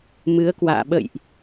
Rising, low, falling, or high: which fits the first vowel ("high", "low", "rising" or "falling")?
rising